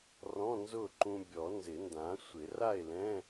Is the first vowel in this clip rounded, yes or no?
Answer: yes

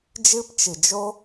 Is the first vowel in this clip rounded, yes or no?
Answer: no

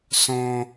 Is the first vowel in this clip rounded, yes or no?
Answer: yes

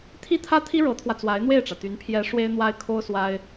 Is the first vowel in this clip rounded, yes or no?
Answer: no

